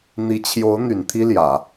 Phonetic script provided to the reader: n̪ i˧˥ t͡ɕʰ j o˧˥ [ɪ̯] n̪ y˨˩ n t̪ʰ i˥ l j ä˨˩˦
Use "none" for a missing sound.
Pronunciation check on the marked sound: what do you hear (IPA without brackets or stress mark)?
ʊ̯